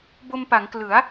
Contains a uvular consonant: no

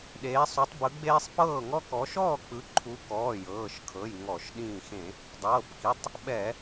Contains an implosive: yes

